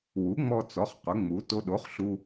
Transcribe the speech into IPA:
w u˩˥ ŋ͡m ɔ˧ t͡s ɔ˩˥ χ q ʊ˩˥ ŋ͡m u˩˥ t o˧ ɗ o˩˥ χ ɬ u˧

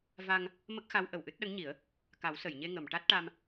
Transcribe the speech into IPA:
v a˧ ŋ | m ə˦˥ k̚ x a˧˥ w ʔ ə˨˩ w ʔ ɨ˦˥ t̚ ɗ ə˧˥ ŋ ɲ i˨˩˦ ə̯ | k a˨˩˦ w s ə˨˩˨ j ɲ e˧ ŋ ə˨˩˨ m ʈ a˦˥ t̚ ʈ a˧ m

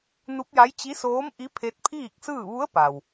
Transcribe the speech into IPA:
n u˧˥ p̚ j a˧˥ j t͡ɕ i˧˥ s oː˧˥ m ʔ i˧˥ pʰ e˧˥ t̚ pʰ iː˥˨ k̚ s ɯː˥˨ ʋ u˧˥ ə̯ p a˩ w

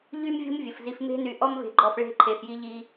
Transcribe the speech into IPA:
ʎ y˦ m vʲ o̤˦ m vʲ ə˨ f z i˧ f m e̤˦ n y˧ ʔ ɔ˦ m v e̤˧ ɡ͡ǃ ɔ˧ f ɭ e̤˦ ǃʰ e˧ f j i˦ ʎ i˦

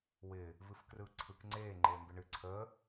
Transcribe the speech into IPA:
w ɪː | v ɨ f k r ɯː ǀʰ ɯ k ŋ͡ǀ eː ŋ͡ǃ eː m b ɪ ɳ ɨ ǀʰ əː

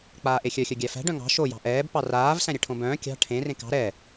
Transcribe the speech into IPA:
k͡p aː ʔ e xʲ œ xʲ œ ɡʲ æ f æ̤ ɖ œ̃ ŋ ɑ̤ ʃ o j ɑ̤ ʔ ɛː b p ɑ r aː v s æ̃ ɾʲ ɛ ʈʰ õ b œ̃ː kʲ ɑ̤ ʈʰ ẽ r ẽ k ɑ̤ ɾ ɛ

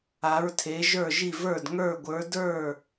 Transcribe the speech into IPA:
a˨˥ ɹ tʰ e˨˥ ʒ ə˞˥˩ ʒ i˥˩ v ə˞˥˩ d ŋ ə˞˥˩ ɡʷ ə˞˨˥ d ə˞˥˩

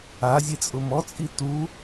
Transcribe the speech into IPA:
a zʲ e t͡sʼ ʊ m ɔ t͡sʼ i t u

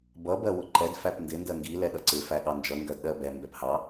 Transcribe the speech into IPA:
b ʌ b ɜ w ʊ ǃ ɛ d f æ p n d ɪ n d ɜ ŋ ɡ i l ɛ ɗ ʌ ǀ ɪ f æ ɠ ɑ n d͡ʒ ʌ ŋ ɡ ɜ d ɗ ɜ b ɛ m b ɛ p h ɑ

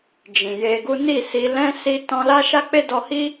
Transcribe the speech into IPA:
d͡ʒ ĩ˨ j e˧ ɡ u˦ n i˦˨ s i˧ l ɛ̃˦ s i˧ t ɔ̃˧ l a˦ ʃ a˦ k͡p e˦ d ɔ˧ h i˦

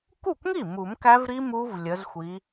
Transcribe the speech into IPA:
k u˥˩ kʷ ŋ i˥˩ m u˨˩˦ m k æ˦˥ v ɾ i˦˥ m u˦˥ v lʲ ə˨˦ z xʷ i˨˦

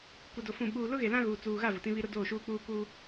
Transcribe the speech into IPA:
kʷ ɛ˨ d o˨ f ũ˨ ɓ uː˨ l ʊ˦ ɣ e˨ l ã˦ ɣ uː˨ t͡s uː˨ ɣ a˦˨ v ʊ˨ t ĩ˦ β i˦ ɾ ʊ˦ d oː˦˨ ʃ uː˦ k͡p uː˦ k u˦

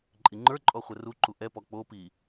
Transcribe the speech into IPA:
ǃʼ i ŋ͡ǃ ə˞ ǃʼ ɔ χʷ ɛ r u ǃ u ʔ ɛ p ɔ k͡p o p i

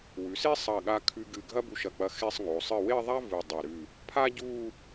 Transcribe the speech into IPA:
w ʉ˩˧ s e˥ sˤ ɐ˧˩ ɠ a˧ kʰ ʉ˧ ɡ ɨ˧˩ ɡʱ ɐ˥ b u˧ ʃ ɐ˧˩ k͡p ɐ˧ x e˥˧ sˤ ŋ o˩˧ sˤ ɨ˧˩ w e˥˧ ðˤ a˥ v ɨ˧˩ dˤ ɐ˧˩ ɾ ʉ˧˩ | pʰ a˥ ɟ u˥˧

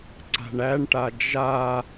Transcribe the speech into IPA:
ǀ a̤ ɳ æ ɳ ʈ a d͡ʒ a

